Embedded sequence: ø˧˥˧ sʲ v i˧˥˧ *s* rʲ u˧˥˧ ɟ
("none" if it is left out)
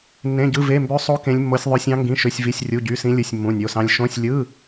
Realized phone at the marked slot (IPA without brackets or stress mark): sʲ